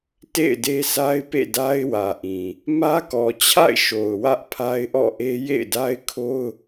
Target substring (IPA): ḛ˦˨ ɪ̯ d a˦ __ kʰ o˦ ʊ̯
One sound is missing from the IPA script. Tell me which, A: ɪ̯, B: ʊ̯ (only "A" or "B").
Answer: A